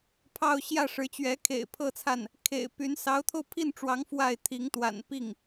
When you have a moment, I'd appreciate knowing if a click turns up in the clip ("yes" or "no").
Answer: no